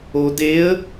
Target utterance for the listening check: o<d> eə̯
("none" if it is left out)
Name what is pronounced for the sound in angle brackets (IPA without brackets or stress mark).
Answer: d